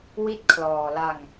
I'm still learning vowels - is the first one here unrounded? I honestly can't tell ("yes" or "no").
yes